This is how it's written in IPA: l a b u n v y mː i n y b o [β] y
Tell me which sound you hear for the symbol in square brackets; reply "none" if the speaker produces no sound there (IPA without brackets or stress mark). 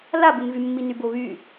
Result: β